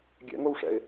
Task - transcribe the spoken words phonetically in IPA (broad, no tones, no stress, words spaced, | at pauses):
ɡʲɛ̰ŋowʂɛ̰ɪ̯